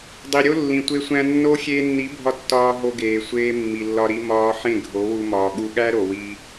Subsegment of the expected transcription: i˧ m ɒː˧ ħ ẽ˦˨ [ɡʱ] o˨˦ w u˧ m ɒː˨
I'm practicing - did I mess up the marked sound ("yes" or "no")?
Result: no